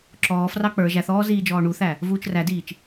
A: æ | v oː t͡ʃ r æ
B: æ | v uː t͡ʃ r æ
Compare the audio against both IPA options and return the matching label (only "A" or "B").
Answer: B